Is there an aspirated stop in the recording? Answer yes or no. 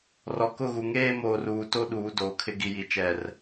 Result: yes